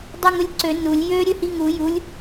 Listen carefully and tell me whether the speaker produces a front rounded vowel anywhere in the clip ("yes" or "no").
yes